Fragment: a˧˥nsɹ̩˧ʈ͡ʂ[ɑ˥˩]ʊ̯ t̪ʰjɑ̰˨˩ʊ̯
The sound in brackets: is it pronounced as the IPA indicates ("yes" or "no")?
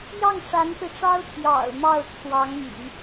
no